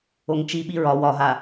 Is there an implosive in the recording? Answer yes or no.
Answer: yes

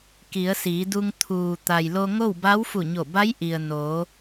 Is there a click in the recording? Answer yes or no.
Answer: no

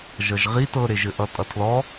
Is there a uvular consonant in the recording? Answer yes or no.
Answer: yes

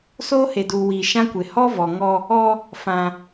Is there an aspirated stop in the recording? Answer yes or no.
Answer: no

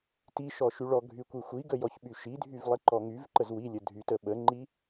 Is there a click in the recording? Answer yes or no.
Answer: yes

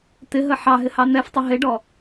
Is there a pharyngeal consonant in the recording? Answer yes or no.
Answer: yes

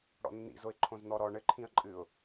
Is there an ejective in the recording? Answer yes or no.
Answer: yes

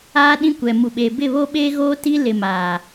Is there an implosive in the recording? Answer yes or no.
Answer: yes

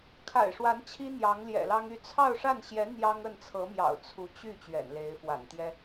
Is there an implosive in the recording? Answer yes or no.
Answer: no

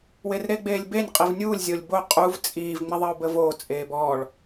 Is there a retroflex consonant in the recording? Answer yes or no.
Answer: yes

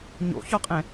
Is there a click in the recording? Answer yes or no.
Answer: no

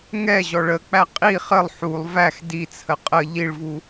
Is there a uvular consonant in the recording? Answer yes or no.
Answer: yes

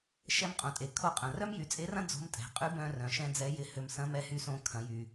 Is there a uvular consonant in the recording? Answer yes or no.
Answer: yes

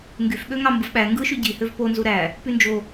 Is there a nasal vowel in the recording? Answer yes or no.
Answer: no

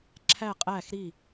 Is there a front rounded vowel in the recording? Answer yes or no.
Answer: no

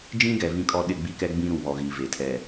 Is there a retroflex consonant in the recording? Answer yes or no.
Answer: no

